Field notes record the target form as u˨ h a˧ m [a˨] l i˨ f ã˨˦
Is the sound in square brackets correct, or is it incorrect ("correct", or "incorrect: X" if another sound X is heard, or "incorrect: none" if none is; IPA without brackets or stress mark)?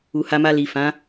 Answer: incorrect: a˧